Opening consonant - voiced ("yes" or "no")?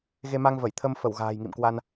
yes